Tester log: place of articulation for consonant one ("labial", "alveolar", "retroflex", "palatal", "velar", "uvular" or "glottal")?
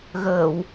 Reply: velar